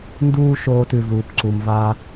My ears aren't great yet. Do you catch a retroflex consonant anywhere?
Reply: no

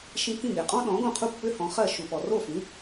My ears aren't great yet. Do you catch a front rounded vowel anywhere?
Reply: yes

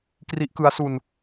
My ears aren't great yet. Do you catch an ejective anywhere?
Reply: no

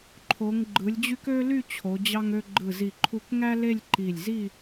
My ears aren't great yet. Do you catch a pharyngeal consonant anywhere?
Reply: no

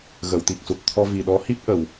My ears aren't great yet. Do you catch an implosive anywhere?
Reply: yes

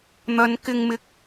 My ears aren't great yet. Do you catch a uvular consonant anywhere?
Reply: no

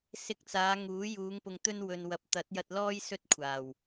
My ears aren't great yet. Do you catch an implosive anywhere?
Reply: no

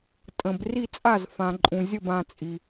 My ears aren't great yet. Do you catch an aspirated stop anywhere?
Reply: no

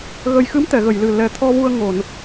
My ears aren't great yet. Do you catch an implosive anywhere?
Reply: no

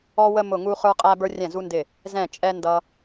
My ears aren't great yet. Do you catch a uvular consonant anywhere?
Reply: yes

